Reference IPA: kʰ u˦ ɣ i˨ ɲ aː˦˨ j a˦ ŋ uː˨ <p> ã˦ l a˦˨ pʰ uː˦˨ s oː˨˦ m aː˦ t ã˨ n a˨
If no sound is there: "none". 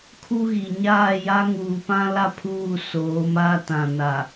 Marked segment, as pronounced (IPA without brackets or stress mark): p